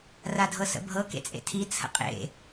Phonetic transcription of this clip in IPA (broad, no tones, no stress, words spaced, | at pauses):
radʱɤsə̰bʱɤ kḛt͡sʼḛtʰi t͡sʰə̰qʼḛ